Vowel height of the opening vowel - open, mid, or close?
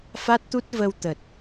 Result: open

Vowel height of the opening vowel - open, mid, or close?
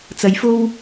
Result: open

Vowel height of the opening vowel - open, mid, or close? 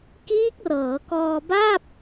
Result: close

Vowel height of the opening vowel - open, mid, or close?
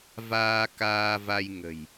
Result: open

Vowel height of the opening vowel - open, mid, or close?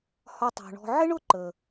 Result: open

